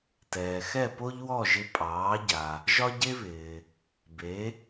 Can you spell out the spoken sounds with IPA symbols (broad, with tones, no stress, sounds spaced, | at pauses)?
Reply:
t ɛː˩ x ɛ˥˩ p o˥ ʎ w ɔ˥˩ ʒ ɪ˧ pʼ ɑː˩˥ ɟ a˩ | ʒ ɒ˥ ɟ e˥ β ɪː˩ | b e˩˥